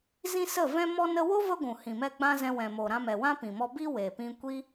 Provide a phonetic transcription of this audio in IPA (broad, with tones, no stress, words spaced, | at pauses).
zĩ˦sə˦˨ vɛ̃˧mɔ˧nə˧wo˦ və˦ɡʷũ˨ hĩ˨mɛ˧ ɡ͡bã˦zɛ̃˧ wɛ̃˨ mo˨ɾã˧mɛ˨ wã˦pĩ˨mɔ˧ bi˧ we˨pĩ˧kʷi˦